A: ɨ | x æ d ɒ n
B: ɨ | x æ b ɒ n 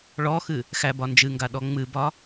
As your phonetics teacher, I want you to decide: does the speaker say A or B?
B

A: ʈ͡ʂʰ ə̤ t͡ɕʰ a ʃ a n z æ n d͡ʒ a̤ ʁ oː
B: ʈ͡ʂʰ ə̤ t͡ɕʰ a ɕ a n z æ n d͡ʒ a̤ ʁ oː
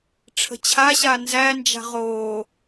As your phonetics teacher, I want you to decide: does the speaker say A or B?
B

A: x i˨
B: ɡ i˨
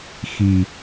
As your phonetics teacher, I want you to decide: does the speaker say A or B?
A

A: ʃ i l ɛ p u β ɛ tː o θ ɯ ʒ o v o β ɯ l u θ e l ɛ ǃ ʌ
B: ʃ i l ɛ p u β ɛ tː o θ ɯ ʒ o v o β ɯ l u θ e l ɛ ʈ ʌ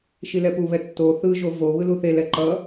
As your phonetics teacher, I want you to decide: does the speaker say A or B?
A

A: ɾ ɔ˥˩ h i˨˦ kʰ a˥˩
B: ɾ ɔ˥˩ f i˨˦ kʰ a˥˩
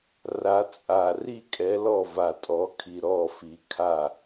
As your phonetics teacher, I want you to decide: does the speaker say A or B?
B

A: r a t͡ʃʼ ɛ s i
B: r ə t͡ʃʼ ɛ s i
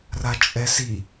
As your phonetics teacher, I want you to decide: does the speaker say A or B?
A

